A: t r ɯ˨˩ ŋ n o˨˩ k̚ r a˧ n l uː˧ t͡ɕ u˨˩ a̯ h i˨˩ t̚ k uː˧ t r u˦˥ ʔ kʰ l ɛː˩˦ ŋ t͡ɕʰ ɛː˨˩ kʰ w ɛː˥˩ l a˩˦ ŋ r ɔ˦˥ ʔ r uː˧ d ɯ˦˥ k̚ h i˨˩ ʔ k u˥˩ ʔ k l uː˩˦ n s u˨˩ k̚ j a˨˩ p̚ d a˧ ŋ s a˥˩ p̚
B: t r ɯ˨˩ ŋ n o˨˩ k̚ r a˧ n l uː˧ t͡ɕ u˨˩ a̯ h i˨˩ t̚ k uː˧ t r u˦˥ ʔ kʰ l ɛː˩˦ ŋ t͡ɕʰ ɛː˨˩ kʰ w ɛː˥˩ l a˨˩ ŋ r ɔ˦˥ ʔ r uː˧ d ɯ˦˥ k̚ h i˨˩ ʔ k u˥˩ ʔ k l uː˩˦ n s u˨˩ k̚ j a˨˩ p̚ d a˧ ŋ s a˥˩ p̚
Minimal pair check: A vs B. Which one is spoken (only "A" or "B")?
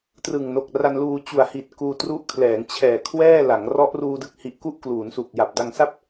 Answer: A